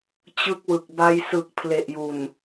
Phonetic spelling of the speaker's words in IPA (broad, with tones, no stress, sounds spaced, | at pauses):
t͡ɕ ɯ˦˥ k̚ w ɯ˨˩ k̚ b a˧ j s ɯ˨˩ k̚ pʰ l e˨˩ ʔ j u˨˩ n